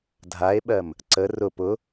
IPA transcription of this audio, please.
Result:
dʱ a e̯ ɓ ɜ m | ǀ ə r ʊ p ʊ

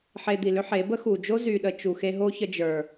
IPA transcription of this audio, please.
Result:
ħ e˧ d̪ i˨ l ʏ˦ ħ e˨˦ b ə˦ x u˨ d͡ʒ o˦ z y˨ ɗ ə˦ t͡ʃ u˨ x e˧ ɦ o˦ ç ə˧ d͡ʒ ə˞˨

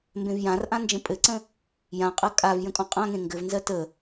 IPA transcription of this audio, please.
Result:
m b ẽ v j ã r ʔ ã n d͡ʒ ə̃ pʼ ɘ ǀ ə̃ | j ã qʼ ɜ kʼ a v j ə̃ kʼ ɔ̃ qʼ ã ŋ ẽ ŋ ɡ ɘ v n z ɜ t ə

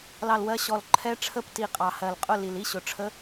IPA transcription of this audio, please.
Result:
l ɑ˦˨ l w ɜ˧˥ ɕ ɔ˨˩ l ǃʰ ɛ˧˥ ʈ͡ʂʰ ə˦˨ p t i˨˩ qʼ ɑ˨˩ h ɜ˨˩ l qʼ ʊ˦˨ l i˨˩ l i˧˥ ɕ ʊ˨˩ ʈ͡ʂʰ ə˧˥

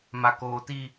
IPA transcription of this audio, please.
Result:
m a˦ k oː˦ t i˦

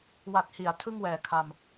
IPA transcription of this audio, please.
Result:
w a˨˩ t̚ h i˩˦ a̯ tʰ ɯ˥˩ ŋ w ɛː˨˩ kʰ a˧ m

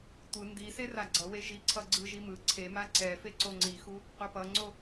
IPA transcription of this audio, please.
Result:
tʷ ɯ n d i s e r a ɡ͡ǀ ʌ w e ʒ i ǀʰ ʌ ɡ͡ǀ ɯ ʒ i m ɯ ǀʰ e m a ǀ ɛ f e ǀ o ŋ͡ǀ i x u | qʷ ʌ p ʌ ŋ͡ǀ o

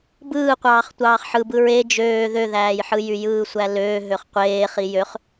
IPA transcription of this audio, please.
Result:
b ɯː qʷ ɑː χ tʷ ɑː χ ħ ɯ b ɯ ɹ e d͡ʒ øː ð ø ð æː j ħ ɯ j y j ɯː sʷ æ l øː ɦ ø χ qʷ eː χ i j ø χ

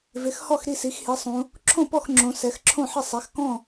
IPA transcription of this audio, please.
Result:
v ɪ˩˧ x h ɔ˥˩ x ɾ i˥˩ s i˩˧ x h i˩˧ sˤ ũ˩˧ | ǁʰ õ˥˩ p ɔ˥˩ x ŋ͡ǁ õ˩˧ s ɛ˩˧ x ǁʰ õ˥˩ ħ ɪ˥˩ sˤ ɛ˩˧ x k ɔ̃˥˩

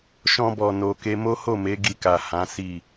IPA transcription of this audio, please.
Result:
ʃ ɔ̃˦ b ɔ˧ n o˧ k e˧ m o˦ h o˦˨ m e˨˦ ɡ i˧ k a˨ h ã˨˦ s i˦˨

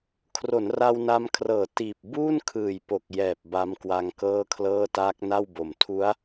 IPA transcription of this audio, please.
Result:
kʰ r o˩˦ n r a˧ w n a˧ m kʰ r ɤː˨˩ t iː˨˩ p̚ b uː˥˩ n kʰ ɯː˨˩ j p o˨˩ k̚ j ɛː˨˩ p̚ b a˦˥ m k w a˦˥ ŋ k ɤː˥˩ kʰ l ɤː˥˩ t aː˦˥ k̚ n a˥˩ w b o˨˩ m tʰ u˦˥ a̯

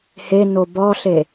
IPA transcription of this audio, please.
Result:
h e n o b ɔ ɬ e

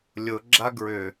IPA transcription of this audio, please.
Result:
lʲ ʊ ɡ͡ǁ a ɡ ɹ ʏ

